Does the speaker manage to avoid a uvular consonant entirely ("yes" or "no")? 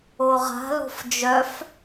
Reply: no